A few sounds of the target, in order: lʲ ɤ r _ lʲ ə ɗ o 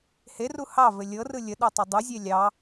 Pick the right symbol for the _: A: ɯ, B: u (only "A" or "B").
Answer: A